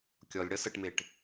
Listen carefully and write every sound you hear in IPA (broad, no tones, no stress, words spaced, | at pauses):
kʲɔlʲ ɽʌsəʈmeʈ